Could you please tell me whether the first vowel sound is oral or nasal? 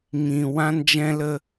nasal